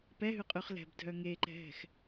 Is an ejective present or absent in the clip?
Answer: present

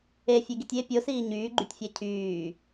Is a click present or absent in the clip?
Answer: present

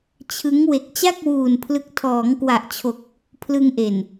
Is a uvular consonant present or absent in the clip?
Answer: absent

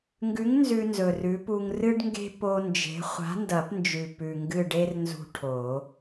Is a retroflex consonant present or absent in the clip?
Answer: present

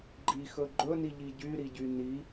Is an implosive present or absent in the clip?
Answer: absent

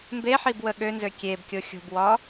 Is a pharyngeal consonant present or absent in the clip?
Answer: present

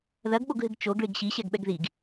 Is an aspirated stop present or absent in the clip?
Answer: absent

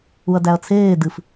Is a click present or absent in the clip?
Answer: absent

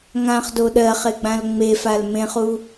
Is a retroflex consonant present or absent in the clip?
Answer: absent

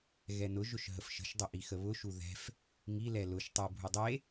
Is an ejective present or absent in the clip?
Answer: absent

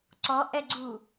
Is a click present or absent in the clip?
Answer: present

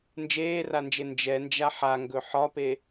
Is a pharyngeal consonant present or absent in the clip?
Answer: present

